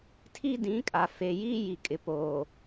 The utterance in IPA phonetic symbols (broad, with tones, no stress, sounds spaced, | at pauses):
tʰ i˦ d ĩ˨˦ kʼ a˨ f e˨ j iː˦ j i˨ kʼ ɪ˨ p oː˨